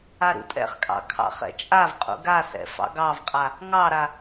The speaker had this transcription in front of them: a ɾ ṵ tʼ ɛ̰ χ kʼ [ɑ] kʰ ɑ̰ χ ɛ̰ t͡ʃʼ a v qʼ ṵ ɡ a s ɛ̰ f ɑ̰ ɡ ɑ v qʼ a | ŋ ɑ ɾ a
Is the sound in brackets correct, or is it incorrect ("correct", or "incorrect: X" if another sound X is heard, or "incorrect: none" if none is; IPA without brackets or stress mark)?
incorrect: ɑ̰